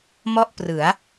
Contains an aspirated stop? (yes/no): no